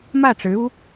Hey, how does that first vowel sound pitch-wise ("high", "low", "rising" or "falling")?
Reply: falling